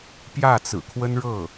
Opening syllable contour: falling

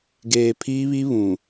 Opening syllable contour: low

